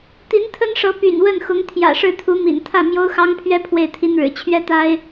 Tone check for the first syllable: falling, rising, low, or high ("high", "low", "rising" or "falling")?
rising